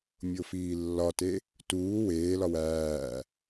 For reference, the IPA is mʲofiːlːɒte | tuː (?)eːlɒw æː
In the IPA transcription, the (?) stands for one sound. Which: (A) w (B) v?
A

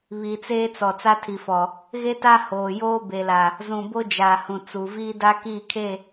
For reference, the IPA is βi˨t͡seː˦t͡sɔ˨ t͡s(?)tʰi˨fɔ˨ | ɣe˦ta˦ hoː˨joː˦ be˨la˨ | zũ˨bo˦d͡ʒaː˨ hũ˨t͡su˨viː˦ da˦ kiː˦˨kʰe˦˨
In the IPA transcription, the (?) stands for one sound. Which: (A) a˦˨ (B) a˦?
B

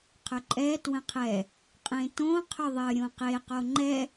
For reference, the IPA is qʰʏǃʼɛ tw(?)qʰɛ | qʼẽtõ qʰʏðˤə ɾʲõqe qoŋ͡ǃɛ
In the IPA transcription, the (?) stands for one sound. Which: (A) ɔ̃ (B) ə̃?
B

